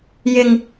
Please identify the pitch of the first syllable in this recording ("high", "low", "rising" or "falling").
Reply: low